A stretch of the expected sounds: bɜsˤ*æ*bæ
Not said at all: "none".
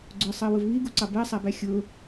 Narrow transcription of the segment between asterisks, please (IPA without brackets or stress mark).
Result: æ